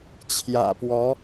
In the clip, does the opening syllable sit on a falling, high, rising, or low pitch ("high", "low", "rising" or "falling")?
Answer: low